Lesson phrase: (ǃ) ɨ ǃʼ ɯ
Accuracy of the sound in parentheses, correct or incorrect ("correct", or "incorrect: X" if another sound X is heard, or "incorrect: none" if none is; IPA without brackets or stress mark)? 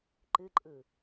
correct